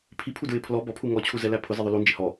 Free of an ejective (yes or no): yes